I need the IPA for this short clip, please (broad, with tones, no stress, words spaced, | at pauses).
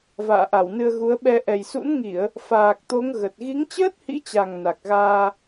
va̰ː˧˨ʔa˧˩wnɨ˧ə̯ ɣu˨˦ə̯ɓɛ˧ ʔɛ˨˩jsṵ˧˥nŋi˧˩˨ə̯ | faː˨˩k̚t̪o˨˦ŋ ɣə˨˩t̚ ɣi˨˦ŋt͡ɕəː˦˥t̚hḭ˧˥t͡ɕa˨˩ŋ na˨˩k̚ɣaː˧